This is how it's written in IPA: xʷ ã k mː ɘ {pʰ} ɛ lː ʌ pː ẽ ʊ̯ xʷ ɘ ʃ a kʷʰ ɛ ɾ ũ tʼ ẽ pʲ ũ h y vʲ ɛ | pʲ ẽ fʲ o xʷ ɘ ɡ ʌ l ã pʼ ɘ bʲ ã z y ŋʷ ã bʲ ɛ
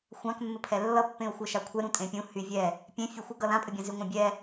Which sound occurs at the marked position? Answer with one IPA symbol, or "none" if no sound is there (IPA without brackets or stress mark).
pʰ